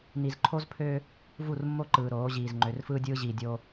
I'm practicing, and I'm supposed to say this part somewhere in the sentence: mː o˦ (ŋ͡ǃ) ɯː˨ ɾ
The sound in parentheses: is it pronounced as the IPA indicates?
no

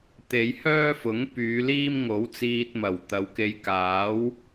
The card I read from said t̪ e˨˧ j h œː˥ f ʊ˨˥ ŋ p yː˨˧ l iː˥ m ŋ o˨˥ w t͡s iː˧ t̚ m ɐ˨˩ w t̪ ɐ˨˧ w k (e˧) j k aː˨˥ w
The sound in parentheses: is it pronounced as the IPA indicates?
yes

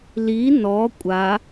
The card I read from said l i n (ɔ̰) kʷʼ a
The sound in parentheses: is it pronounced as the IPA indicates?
no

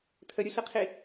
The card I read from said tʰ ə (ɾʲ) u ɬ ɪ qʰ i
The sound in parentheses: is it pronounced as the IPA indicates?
yes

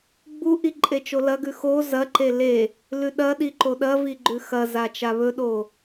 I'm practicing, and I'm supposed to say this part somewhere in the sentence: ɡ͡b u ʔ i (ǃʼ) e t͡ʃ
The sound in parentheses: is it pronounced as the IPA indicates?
yes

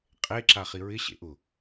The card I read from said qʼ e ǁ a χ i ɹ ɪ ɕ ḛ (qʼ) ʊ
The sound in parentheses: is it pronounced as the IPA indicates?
no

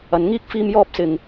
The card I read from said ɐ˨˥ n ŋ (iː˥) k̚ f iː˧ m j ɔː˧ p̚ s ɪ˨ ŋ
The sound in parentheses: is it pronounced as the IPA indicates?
yes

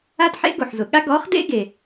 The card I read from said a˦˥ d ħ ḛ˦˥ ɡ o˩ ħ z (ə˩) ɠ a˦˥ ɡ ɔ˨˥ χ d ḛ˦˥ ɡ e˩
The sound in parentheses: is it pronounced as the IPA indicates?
no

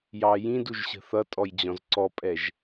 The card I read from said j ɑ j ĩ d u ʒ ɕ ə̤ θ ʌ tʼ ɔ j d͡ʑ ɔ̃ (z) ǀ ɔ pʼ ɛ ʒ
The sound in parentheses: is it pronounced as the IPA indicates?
yes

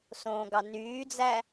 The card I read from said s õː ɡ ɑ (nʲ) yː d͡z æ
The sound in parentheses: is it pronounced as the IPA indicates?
no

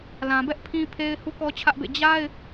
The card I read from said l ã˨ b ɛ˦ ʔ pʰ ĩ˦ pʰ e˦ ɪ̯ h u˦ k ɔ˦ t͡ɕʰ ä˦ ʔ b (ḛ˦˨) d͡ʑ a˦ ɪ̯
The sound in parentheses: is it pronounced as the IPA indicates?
yes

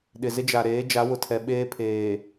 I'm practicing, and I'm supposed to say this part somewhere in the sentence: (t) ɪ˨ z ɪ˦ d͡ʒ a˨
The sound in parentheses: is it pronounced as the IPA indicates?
no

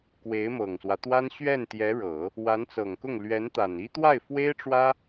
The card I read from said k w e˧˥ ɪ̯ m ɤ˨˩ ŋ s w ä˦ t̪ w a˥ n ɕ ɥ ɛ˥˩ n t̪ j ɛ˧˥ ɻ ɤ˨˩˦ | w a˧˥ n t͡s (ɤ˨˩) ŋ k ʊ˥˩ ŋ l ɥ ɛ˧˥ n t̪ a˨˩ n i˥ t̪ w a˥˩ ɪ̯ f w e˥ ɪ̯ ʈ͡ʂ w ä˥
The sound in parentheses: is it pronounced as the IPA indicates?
yes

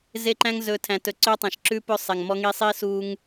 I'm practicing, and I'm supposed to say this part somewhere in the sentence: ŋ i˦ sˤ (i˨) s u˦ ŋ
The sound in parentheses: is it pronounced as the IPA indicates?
no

